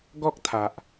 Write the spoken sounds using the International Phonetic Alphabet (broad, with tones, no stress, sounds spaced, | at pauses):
ɡ ɔ˦ k̚ t̪ʰ a˨ ʔ